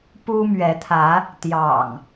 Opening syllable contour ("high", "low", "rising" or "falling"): high